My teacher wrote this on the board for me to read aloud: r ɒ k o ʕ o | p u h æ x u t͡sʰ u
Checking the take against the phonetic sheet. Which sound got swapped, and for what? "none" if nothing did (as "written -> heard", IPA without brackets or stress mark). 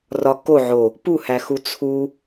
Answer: none